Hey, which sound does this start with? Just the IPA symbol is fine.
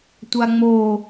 tʷ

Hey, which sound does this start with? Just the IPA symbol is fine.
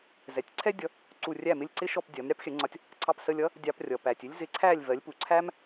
z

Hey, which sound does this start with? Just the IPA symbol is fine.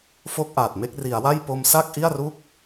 f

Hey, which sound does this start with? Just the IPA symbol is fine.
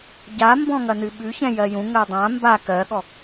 ɟ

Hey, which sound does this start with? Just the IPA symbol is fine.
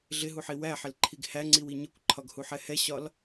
ɮ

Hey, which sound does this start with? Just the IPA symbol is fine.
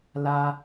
l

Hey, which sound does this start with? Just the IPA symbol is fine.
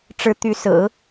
ʈ͡ʂ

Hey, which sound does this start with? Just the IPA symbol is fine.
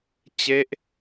t͡ɕ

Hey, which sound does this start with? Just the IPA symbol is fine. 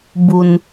b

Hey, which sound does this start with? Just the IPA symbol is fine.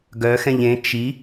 ɡ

